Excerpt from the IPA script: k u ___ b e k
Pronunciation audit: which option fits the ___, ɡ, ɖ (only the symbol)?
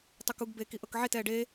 ɡ